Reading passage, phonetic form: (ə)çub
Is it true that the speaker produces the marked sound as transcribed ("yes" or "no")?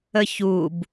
yes